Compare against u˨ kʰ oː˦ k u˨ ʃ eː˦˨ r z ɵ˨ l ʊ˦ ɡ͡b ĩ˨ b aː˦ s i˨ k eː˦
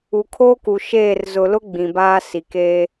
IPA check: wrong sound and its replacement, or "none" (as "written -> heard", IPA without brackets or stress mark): ɵ˨ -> ʊ˨